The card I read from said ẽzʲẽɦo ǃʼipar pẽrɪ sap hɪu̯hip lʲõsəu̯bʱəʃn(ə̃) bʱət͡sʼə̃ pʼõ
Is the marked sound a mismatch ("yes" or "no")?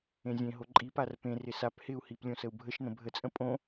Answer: no